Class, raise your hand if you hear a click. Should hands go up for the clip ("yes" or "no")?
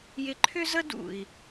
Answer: yes